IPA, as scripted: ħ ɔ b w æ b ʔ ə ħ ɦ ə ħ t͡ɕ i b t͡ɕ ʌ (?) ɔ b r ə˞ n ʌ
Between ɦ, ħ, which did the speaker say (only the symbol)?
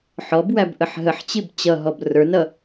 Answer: ɦ